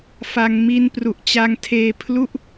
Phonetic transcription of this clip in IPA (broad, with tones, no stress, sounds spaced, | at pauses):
f a˧ ŋ m i˦˥ n p r u˨˩ ʔ t͡ɕ a˧ ŋ tʰ eː˧ pʰ l u˥˩ ʔ